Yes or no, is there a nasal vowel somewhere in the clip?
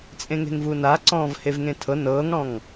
yes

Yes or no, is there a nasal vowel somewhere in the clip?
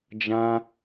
yes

